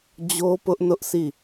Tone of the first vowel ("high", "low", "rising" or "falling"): high